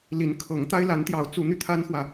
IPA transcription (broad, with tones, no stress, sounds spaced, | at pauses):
l i˨˦ n kʰ ɤ˨˦ ŋ t̪ a˦ ɪ̯ l a˨˦ n t̪ j ɑ˨˦ ʊ̯ t͡s u˨˦ n̪ y˧ t̪ʰ a˦ n x w ä˨